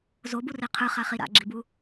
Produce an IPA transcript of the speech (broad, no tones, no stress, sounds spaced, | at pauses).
z o b u r i qʰ ɯ χ a χ i ɾ a̰ ɡ͡ǁ i b u